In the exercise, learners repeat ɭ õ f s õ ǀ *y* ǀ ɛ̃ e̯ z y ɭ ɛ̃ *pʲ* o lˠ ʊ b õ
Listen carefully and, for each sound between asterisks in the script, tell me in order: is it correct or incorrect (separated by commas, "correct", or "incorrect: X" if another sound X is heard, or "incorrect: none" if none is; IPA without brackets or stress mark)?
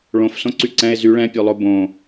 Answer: correct, correct